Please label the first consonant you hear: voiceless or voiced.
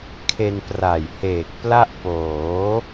voiceless